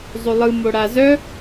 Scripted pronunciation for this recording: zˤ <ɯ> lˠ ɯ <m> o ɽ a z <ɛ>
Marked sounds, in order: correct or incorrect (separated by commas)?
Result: incorrect, correct, incorrect